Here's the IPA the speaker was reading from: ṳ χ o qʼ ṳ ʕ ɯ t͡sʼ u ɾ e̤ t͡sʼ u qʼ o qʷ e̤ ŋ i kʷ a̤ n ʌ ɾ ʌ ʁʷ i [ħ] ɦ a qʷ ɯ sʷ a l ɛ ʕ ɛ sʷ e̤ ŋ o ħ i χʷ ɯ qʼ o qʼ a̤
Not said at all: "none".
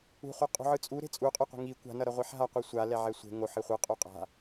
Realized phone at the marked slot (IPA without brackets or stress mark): ħ